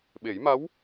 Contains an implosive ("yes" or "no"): yes